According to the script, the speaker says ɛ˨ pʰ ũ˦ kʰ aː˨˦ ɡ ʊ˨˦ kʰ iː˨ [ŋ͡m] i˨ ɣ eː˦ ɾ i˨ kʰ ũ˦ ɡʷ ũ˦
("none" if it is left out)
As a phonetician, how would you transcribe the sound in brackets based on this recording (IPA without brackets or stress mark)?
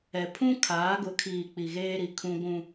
k͡p